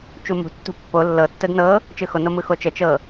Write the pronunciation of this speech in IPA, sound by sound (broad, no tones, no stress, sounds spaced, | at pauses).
t͡ʃ u m ṳ tː ṳ pː o lː ɤ tː ə d n ɤ | t͡ʃ ɯ x o n o m ɯ x o t͡ʃ ə t͡ʃ ɤ